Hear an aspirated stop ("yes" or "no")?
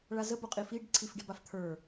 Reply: yes